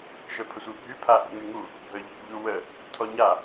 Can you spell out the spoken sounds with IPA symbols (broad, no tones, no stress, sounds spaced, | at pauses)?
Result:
ʃ œ pʰ ə sʷ i bʱ y pʰ a ʔ ḛ ŋ y ŋ u | bʱ œ ʎ ḛ ʎ u w ə | tʰ ɔ ɲ a